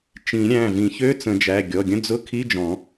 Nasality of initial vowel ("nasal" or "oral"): nasal